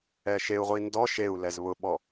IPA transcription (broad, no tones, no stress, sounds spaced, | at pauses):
ɛ ʃ e u̯ ʁʷ i n d ɔ ʃ e u̯ l ɛ z β ʊ ɓ ɔ